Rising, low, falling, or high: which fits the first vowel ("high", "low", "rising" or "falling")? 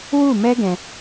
falling